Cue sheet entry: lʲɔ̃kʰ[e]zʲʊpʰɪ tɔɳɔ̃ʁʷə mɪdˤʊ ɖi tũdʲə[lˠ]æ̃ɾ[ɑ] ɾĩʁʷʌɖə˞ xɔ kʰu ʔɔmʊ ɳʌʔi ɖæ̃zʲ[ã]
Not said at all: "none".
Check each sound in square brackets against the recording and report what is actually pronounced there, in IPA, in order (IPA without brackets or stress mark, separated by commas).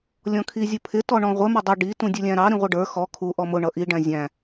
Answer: i, lʲ, ɑ, æ̃